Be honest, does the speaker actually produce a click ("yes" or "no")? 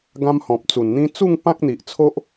no